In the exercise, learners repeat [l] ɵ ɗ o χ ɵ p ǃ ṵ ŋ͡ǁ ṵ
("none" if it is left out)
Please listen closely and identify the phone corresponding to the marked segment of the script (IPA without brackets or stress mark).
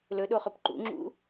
l